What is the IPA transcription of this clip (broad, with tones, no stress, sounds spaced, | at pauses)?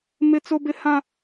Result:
m ɪ˦ t͡s o˦ b ɪ˦ h ã˦